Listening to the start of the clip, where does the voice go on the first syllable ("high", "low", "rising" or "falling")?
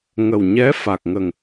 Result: low